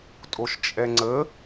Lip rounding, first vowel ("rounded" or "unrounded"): rounded